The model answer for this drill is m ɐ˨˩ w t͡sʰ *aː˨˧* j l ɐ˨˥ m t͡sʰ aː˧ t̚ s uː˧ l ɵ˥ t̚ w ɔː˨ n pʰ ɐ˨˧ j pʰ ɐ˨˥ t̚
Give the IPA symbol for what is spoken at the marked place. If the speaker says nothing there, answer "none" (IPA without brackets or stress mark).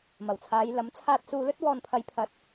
aː˨˧